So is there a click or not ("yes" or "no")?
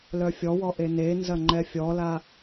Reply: yes